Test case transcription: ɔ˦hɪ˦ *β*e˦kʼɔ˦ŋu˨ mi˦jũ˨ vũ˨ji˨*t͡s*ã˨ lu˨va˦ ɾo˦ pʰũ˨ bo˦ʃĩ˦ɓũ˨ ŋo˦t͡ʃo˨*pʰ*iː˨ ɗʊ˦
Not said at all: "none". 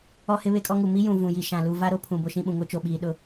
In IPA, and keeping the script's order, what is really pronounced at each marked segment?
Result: β, ʃ, ɓ

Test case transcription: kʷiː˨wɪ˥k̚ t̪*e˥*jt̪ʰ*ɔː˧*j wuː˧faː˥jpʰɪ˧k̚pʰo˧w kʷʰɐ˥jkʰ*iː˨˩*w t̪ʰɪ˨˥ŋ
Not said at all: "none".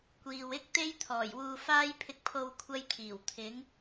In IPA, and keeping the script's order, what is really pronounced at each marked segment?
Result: e˥, ɔː˨˩, iː˨˩

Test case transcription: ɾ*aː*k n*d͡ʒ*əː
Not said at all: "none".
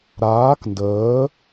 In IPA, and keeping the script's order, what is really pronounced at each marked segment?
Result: aː, d

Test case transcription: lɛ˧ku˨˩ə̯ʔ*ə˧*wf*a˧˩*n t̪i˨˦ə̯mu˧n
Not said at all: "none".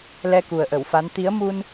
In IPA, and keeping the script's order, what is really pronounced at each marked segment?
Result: ə˧˩, a˨˦

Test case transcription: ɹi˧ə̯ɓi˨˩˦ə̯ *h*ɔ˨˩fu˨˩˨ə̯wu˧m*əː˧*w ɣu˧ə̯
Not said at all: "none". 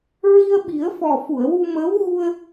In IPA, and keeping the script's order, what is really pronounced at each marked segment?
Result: f, əː˧˥

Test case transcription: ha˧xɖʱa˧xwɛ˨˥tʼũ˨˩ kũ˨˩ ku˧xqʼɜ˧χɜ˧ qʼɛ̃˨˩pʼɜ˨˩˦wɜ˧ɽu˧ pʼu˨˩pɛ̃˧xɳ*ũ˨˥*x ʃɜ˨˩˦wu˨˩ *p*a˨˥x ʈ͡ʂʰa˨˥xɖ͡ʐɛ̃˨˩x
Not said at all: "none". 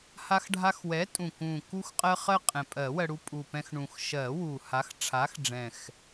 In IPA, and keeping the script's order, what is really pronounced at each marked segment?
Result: ũ˨˩, h

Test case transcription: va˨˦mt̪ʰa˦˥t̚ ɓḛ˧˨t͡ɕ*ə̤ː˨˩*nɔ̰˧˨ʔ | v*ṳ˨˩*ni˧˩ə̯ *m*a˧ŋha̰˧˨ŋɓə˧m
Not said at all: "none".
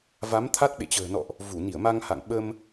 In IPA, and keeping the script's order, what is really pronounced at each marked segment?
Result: ə̤ː˨˩, u˧˩, m

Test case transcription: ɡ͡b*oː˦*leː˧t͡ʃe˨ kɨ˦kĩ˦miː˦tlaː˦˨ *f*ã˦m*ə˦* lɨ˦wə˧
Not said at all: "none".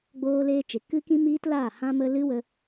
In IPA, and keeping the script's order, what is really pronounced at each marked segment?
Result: oː˧, h, ə˦

